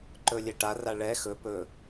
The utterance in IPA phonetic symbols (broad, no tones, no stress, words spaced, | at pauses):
ǃɵlʲeʈa raɭɛ xɵ pɵ